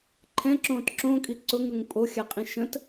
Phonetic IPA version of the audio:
ǃʰ ɛ̃ ǁ õː t ǁ õ kʼ i ǀ ʊ ŋ ɾ ʊ ŋ pʼ o xʲ a qʼ ĩ ʃ ə̃ t

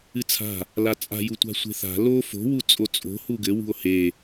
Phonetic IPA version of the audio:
ɨ t͡sʰ a̤ | l a t͡sʼ a̤ j u tʷ a̤ sʷ e̤ θ a̤ l o f o̤ w u t͡sʼ o t͡sʼ o̤ h u ɡ ɘ w ṳ o̯ h e

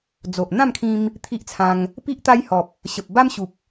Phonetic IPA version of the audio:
d͡z o˨ ʔ n̪ ã˥˧ m kʰ ĩ˧ m | t̪ʰ i˦ ʔ t͡sʰ ã˧ ŋ | p i˦ ʔ t̪ a˦ j h ɔ˨ p̚ | ɕ ə˨ p̚ b a˦ m ɕ u˨ p̚

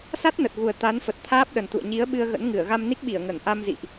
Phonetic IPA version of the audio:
s a˦˥ t̚ n ə˨˩ t̚ ɣ u˨˩ ə̯ t̪ a˨˦ n f ə˨˩ t̚ t̪ʰ aː˦˥ p̚ ɗ ə˨˩ n t̪ ṵ˧˨ ə̯ ɲ i˨˦ ə̯ ɓ ɨ˧ ə̯ ɣ ə̰˧˥ n ŋ ɨ˧˩ ə̯ ɣ a˧ m n i˦˥ k̚ ɓ i˧˩ ə̯ ŋ ə˧˩ n ʔ a˧ m z ḭ˧˨ ʔ

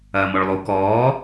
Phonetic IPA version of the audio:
ɐː m ɔ ɭ lˠ o k ɔː

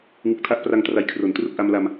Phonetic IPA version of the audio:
ŋ ɯ˨˩ k̚ tʰ a˦˥ ʔ p r a˧ ŋ t r a˨˩ j kʰ r o˨˩ n t r u˥˩ k̚ ʔ a˧ m l a˧ m

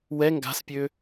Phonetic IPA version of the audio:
w ɛ ŋ ɡ a̤ s pʲ ø

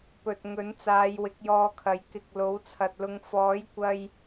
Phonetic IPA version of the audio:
p ɵ˨ t̚ ŋ ɵ˨˥ n t͡s aː˨˧ j w ɪ˨˥ k̚ j ɔː˧ kʰ ɐ˨˥ j k ɪ˨ k̚ l o˨˥ w t͡sʰ ɐ˨ t̚ l ʊ˧ ŋ f ɔː˨˥ j kʷ ɐ˧ j

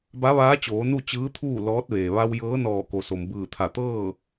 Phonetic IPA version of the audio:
b a˧˥ ʋ aː˧˥ t͡ɕ oː˩˧ n u˥˨ t͡ɕ ɯː˧˥ t̪ʰ uː˥˨ l ɔː˧˥ t̚ ʋ eː˩ ʋ a˧ w j ɤː˧˥ n ɔː˧˩ k o˩ s o˩ m b ɯː˧˩ t̪ʰ a˧˩ t̪ ɤː˥˨

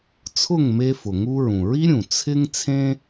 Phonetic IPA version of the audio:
t͡sʰ ʊ˥˩ ŋ m e˧ f ʊ˩ ŋ u˧ ɹ ũ˩ ɹ i˥ ɾʲ ũ˩ t͡sʰ ɪ˥ ŋ t͡sʰ ẽ˥

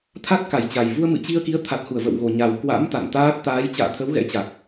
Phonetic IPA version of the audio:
t̪ʰ a˦˥ t̚ k a˧˩ j t͡ɕ a˨˩ j v u˧ ə̯ m ɨ̰˧˨ t͡ɕ i˧ ə̯ k i˨˦ ə̯ t̪ʰ a˨˩ t̚ h u˧˩ ə̯ v ə̰˧˨ w ɣ o˨˩ ɲ a˨˩ w k w a̰˧˥ m t̪ a̰˧˨ n t̪ aː˦˥ t̚ t̪ aː˨˦ j t͡ɕ a̰ː˧˨ t̪ʰ ə˨˦ w ɣ ɛ̰˧˥ t͡ɕ a˨˩ k̚

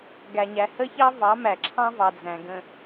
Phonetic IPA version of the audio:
ɡ æ˨ ɲ æ˨ h ə˦ ç ɑ˦ v ɑ˨˦ m æ˨ ǁʰ ɑ̃˦ v ɑ˨ d͡z æ̃˨ ɡ ə̃˨

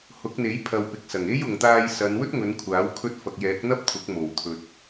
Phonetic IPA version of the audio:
h ʊ˨˥ k̚ n̪ e˨˥ j pʰ ɐ˨ w p ɪ˨ k̚ s ɐ˨˩ ŋ e˥ j ʊ˨ ŋ t̪ aː˧ j s ɐ˨˧ n w ɵ˥ t̚ ŋ ɵ˨˧ n kʷʰ aː˨˥ w kʰ ɵ˧ t̚ f ɐ˨ k̚ j ɛː˨˥ k̚ n̪ ɐ˥ p̚ t̪ʰ ʊ˨˥ k̚ m o˨˩ w t̪ʰ ɵ˨ t̚

